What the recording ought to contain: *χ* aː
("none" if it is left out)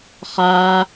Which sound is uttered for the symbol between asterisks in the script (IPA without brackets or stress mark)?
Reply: χ